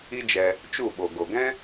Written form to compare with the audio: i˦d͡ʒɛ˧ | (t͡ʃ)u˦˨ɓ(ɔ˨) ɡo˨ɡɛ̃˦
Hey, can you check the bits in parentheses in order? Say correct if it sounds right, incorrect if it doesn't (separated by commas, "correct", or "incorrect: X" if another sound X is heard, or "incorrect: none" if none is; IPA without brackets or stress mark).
correct, incorrect: o˨